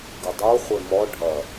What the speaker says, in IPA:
ɡɘdˤo χʷemɔ ɖʱɐ

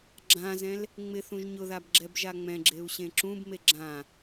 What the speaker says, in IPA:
ɡ͡ǁãzɛ̃l | ŋ͡mɪθũʒ ɲʊðabɡ͡ǁɛbʒa ŋ͡mɛ̃ɡ͡ǁeu̯ɕẽ ǁũbme ɡ͡ǁã

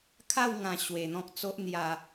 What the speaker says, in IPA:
kʰa˥˧wŋã˧ ɕwe˧n̪ɔ̃˦k̚t͡so˦ʔ n̪ja˧

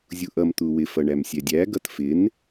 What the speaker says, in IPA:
zʲuʔʌm t̪uwɪ fʌɳæmsʲɛdʲæ ɡʌtfɪn

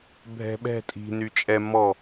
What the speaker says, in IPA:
bʱɛ̤ ɓɛ̤ tʼi̤ nyt͡ʃʼɛ mɔ

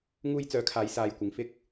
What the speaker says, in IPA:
ŋuː˥j t͡sœː˨˥kʰaː˨˥j saː˨jkʷɪ˨ŋ fɪ˥k̚

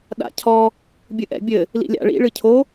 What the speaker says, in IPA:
ɗa̰cʰɔ | bʲɨʔɛ̰bʲɘ | lḭlʲa̰ ɭḭ ɭɨcʰo

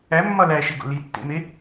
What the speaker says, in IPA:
æmːɒ læʃeɡo̰ litːḛme

